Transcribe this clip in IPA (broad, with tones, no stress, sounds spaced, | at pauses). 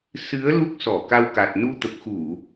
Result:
s ɨ˨˦ ə̯ l u˦˥ k̚ s ɔ˧˩ k a˧ w k a˨˩ t̚ n u˧ t̪ ə˨˩ p̚ x u˧˩˨